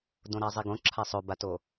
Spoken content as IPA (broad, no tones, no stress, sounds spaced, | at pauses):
d õ ɾ a zˤ i ɡ õ ǁʰ a sˤ ɵ b a t o